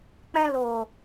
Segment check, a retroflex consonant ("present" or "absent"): absent